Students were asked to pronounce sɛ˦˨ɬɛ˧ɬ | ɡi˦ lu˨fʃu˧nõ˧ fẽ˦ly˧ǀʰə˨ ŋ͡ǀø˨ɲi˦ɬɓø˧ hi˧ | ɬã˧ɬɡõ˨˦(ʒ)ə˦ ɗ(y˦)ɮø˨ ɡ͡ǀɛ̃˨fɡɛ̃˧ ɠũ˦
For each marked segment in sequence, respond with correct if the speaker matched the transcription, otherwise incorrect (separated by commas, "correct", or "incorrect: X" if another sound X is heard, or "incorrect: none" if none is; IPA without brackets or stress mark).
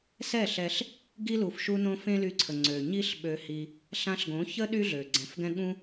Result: incorrect: ç, correct